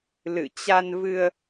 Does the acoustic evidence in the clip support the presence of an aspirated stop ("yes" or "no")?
no